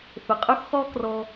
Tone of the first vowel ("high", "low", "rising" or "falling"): low